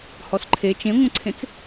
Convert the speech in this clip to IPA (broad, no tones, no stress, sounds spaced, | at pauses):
h ɔ s ǃʰ e t͡ʃ ẽ ŋʷ ə̃ ǀʰ ẽ t͡s